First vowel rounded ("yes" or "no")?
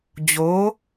yes